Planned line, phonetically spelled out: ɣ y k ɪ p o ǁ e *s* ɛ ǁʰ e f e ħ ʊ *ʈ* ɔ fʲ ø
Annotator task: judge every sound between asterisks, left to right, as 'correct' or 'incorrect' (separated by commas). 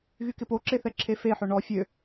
incorrect, incorrect